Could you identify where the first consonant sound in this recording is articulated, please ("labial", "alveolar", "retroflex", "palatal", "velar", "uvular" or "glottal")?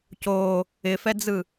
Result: palatal